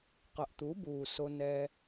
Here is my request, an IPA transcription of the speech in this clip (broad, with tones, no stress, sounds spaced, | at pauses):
q ʌ˨ ʔ t̪ u˨˦ b uː˨ s o˧ n ɛː˧